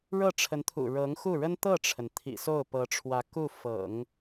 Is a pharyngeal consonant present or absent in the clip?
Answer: absent